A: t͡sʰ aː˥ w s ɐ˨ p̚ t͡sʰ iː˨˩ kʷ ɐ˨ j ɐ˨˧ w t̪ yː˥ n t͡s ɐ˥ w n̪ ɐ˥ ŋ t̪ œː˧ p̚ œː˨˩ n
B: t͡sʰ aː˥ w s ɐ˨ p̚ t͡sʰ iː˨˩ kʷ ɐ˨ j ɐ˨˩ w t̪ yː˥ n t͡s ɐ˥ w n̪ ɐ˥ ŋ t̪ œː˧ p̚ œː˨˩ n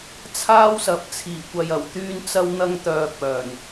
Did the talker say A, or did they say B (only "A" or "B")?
B